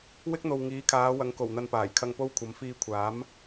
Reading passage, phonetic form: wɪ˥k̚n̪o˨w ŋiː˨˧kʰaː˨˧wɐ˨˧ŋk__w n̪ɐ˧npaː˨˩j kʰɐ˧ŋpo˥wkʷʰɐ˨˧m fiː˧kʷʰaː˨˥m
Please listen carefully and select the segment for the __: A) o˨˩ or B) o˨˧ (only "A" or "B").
A